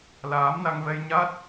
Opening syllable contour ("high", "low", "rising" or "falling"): rising